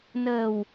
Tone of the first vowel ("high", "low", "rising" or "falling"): low